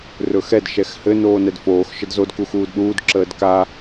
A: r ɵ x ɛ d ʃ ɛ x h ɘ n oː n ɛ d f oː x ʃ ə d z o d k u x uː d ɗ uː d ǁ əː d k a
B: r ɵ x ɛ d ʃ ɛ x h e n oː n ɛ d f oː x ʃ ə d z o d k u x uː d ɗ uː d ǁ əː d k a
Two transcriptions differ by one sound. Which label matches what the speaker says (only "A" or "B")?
A